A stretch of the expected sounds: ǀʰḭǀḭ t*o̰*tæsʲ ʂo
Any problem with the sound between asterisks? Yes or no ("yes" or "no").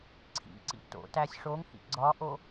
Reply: no